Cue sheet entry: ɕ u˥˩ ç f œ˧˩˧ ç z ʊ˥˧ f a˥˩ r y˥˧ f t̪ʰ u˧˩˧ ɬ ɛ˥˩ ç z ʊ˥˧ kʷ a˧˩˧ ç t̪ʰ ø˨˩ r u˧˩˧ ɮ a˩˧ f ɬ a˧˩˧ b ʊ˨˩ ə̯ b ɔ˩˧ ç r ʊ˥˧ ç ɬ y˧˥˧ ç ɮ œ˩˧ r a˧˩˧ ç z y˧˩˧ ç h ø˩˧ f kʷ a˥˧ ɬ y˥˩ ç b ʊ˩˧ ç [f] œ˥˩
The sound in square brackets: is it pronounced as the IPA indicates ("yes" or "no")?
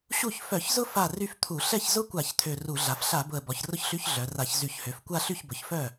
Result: yes